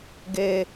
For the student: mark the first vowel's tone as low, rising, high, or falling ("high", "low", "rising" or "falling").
high